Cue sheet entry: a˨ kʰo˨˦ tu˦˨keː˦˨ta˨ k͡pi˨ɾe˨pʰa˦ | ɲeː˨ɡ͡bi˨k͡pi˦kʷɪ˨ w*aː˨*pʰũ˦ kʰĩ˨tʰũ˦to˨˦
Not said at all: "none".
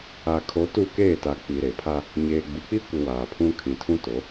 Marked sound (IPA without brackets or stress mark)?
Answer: aː˨